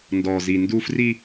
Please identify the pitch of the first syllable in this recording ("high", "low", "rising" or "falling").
low